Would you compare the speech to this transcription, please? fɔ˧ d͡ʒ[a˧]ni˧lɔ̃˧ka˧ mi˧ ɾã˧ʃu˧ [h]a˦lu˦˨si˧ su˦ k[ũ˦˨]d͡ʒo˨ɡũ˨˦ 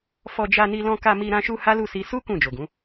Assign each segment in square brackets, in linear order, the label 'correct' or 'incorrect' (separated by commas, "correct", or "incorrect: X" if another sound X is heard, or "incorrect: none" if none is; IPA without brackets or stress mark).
correct, correct, correct